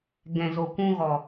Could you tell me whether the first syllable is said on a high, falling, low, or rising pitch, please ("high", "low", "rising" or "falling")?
low